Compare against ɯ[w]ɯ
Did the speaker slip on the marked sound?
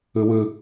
no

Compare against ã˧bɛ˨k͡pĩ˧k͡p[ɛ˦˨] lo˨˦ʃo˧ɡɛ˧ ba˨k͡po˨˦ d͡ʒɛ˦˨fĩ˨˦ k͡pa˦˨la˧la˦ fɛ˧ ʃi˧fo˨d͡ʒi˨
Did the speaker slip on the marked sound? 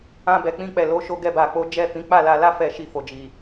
yes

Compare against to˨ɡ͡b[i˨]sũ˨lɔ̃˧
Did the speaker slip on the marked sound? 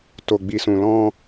no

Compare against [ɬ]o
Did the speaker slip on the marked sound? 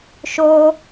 yes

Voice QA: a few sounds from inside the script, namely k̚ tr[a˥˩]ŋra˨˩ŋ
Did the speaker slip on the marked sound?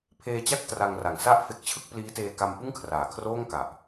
yes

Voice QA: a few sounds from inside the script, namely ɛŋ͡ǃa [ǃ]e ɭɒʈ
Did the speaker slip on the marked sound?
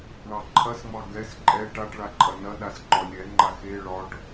yes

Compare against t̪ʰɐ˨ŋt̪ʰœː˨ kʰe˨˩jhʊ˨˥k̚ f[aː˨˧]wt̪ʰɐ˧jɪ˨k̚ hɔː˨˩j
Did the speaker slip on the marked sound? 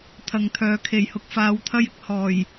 no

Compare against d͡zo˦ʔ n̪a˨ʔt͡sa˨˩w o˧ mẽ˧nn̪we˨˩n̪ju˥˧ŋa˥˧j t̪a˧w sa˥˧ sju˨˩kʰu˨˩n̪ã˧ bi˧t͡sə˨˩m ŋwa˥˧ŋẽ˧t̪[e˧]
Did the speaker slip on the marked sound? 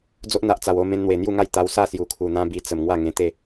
yes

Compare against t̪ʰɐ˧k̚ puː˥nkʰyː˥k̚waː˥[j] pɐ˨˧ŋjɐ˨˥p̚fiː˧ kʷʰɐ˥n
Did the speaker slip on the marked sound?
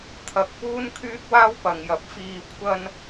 yes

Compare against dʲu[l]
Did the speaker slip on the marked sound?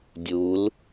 no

